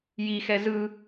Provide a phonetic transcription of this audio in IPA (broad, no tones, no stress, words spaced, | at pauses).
jixɛ zɯ